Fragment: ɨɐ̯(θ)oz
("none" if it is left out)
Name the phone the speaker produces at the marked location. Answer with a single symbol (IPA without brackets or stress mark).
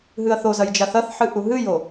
θ